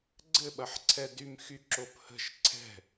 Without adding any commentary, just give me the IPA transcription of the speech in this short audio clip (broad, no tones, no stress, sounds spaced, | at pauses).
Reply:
ɡ͡ǀ ɘ ɓ ɐ ħ ǀʰ ɛ d y m x y ǁ o p h ə̤ ʃ ǀʰ ɛ̤